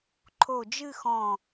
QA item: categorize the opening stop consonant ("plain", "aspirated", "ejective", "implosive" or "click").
click